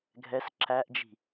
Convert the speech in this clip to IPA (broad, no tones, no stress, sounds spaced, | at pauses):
ɡʱ ɛ s ǁ æ ʔ d͡ʒ i̤